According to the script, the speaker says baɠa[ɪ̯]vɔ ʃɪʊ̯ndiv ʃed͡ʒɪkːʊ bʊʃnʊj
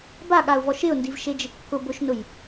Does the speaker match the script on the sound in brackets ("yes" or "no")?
no